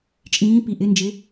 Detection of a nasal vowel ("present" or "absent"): present